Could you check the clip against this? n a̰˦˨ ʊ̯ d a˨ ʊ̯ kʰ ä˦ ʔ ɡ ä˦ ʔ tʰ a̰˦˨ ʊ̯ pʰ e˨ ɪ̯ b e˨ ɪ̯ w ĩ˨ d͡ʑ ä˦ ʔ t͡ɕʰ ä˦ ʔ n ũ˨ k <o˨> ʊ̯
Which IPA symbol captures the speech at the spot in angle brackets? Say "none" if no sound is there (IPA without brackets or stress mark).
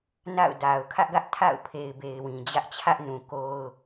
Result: o˦